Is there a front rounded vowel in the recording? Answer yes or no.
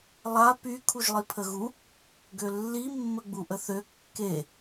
yes